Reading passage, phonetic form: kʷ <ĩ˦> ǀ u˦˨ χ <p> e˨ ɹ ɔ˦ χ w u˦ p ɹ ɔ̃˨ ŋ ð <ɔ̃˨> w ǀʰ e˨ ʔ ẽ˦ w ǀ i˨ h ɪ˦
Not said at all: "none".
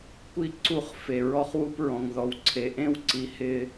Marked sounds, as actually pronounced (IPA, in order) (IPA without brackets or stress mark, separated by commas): i˦, f, ɔ˨